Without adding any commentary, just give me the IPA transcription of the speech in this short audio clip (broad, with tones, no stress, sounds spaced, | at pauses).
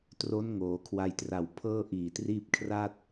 t r o˦˥ n ŋ oː˩˦ kʰ w a˧ j t r a˨˩ w pʰ ɤː˥˩ ʔ iː˨˩ t r iː˥˩ p̚ kʰ r a˥˩ t̚